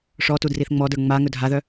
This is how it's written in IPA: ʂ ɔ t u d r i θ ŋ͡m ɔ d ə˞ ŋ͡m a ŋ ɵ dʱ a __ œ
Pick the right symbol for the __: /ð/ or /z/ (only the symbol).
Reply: ð